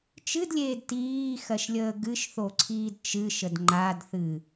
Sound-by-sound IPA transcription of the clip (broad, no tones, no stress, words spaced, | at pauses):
t͡ʃɨdlʲeːd tiːxɜʃlʲəː ɡɨʃθoǀʰiːd t͡ʃɨʃəd ŋ͡ǃadθɨ